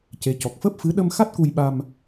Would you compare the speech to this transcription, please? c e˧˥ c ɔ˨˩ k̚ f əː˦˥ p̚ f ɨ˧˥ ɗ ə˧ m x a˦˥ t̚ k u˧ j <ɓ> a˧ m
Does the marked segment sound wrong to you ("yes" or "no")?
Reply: no